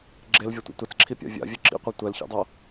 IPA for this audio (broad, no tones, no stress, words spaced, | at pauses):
ɡ͡ǁelvʲʌtʷḭ tʷɛt͡sǁʰipʲa̰ vʲa̰vʲɯ ǁḭqʷa tʷɛlçḭdˤʌ